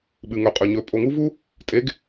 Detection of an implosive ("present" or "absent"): present